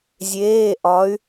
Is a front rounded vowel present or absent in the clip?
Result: present